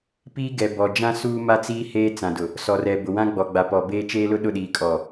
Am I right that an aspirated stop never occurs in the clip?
yes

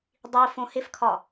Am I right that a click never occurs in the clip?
yes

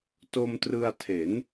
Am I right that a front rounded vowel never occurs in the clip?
yes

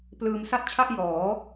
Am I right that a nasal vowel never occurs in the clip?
yes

